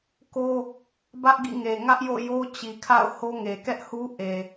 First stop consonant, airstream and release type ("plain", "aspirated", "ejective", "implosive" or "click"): plain